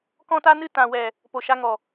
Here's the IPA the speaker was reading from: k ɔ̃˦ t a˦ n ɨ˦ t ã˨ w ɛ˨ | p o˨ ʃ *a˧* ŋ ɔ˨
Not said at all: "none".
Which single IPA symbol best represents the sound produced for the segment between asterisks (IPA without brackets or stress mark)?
a˧